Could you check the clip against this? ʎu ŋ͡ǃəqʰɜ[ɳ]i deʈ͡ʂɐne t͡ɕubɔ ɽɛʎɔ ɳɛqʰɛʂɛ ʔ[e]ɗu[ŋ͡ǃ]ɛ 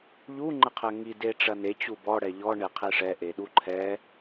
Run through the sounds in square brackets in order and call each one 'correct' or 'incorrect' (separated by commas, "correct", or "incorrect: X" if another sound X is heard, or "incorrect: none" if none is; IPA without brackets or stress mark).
incorrect: ŋ, correct, incorrect: ǃʰ